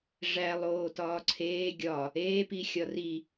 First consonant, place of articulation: retroflex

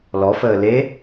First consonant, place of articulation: alveolar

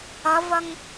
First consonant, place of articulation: labial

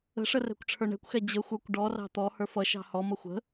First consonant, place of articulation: retroflex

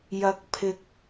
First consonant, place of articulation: palatal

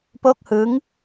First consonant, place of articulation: labial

